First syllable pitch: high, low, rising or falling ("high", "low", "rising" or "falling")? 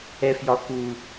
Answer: high